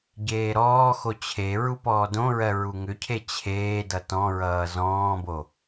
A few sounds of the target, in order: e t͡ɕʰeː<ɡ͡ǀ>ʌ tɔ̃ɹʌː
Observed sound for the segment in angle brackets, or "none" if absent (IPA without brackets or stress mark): d